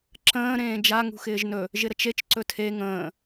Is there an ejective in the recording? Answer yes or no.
no